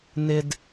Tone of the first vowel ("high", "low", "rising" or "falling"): low